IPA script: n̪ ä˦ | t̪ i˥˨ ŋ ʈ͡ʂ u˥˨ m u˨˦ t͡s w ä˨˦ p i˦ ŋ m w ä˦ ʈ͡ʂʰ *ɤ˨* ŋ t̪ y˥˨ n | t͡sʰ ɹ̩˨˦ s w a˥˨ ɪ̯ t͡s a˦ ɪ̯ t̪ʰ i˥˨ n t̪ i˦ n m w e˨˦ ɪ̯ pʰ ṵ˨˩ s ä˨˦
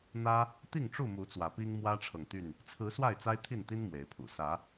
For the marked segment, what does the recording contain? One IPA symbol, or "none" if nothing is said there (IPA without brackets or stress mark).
ɤ˨